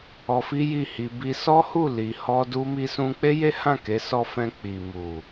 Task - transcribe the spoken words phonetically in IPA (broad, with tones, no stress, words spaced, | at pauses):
ɔ˧fi˦ji˦˨ hi˧bi˦ sɔ˦hu˦˨ li˨hɔ˧du˧ mi˧sũ˧k͡pe˦je˦ hã˦˨ke˨˦sɔ˧fɛ̃˧ k͡pi˨mu˨